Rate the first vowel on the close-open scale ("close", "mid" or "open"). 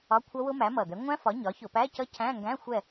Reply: open